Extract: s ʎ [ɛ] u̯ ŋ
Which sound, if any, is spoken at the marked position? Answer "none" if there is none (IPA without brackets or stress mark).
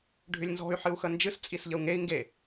ə